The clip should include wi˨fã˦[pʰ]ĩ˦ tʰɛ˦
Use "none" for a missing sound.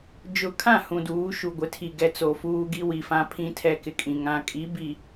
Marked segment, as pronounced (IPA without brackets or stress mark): pʰ